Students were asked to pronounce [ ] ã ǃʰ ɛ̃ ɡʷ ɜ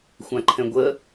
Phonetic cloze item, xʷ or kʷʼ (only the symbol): xʷ